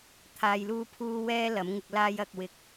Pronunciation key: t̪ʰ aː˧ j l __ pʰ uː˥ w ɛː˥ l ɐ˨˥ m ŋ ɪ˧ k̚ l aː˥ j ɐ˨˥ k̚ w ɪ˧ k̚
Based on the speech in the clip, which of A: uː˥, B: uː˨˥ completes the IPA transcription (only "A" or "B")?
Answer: A